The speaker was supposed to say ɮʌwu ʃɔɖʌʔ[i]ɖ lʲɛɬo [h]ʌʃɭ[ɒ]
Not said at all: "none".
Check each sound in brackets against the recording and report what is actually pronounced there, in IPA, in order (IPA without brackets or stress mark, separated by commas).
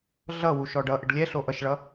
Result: e, ʔ, ʌ